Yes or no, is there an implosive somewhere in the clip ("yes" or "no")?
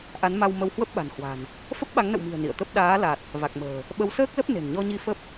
yes